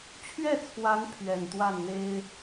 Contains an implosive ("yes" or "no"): no